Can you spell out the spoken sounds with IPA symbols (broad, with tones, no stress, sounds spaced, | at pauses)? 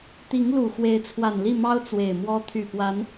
t̪ i˨˦ ŋ l u˨˩ x w e˨˦ ɪ̯ t͡sʰ w a˨˩ n l i˥˨ m ɑ˦ ʊ̯ t͡s w e˨˩ ɪ̯ m w ɔ˦ t̪ʰ y˨˩ p w a˨˦ n